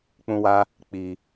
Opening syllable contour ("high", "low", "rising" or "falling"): high